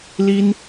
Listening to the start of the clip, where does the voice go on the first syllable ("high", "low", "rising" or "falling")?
high